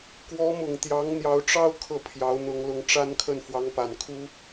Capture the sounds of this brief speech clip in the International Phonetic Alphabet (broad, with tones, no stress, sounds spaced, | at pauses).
k w ɔ˧˥ m ʊ˨˩ ŋ t̪ j ɑ˧˥ ŋ n̪ j ɑ˧˥ ʊ̯ ʈ͡ʂ ɑ˥ ʊ̯ kʰ ɤ˥˩ pʰ j ɑ˧˥ ʊ̯ n̪ ʊ˧˥ ŋ l ʊ˧˥ ŋ ʈ͡ʂ a˥ n kʰ ə˥˩ n f w ɑ˧˥ ŋ p a˨˩ n kʰ u˥